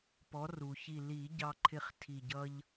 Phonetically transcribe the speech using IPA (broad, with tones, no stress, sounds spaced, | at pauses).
p ɔ˩˥ r u˩ ç i˧˩ l i˨˩˦ ɟ ɑ˦ ǃʰ ɪ˥˨ χ tʰ i˧˩ ɟ ʌ˦ ʎ